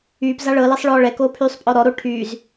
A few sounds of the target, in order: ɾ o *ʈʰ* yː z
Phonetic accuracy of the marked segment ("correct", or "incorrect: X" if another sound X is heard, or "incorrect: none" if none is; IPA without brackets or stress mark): correct